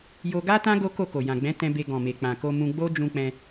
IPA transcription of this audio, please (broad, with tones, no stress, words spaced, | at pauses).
jo˧ɡa˦tã˦ ɡo˦ko˦˨ ko˨ jã˨ɡ͡bɛ̃˨˦tɛ̃˧ be˧ɡɔ̃˨ me˨k͡pã˨ ko˧ mũ˧ɡ͡bo˦d͡ʒũ˧k͡pɛ̃˧